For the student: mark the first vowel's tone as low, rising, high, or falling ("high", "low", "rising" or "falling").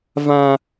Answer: high